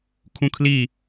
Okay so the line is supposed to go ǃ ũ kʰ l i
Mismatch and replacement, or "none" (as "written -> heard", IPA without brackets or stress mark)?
ǃ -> kʰ